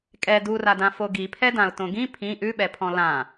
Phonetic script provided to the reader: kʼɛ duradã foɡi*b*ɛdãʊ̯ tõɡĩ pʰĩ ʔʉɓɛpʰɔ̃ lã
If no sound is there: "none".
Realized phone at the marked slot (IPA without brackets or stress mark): pʰ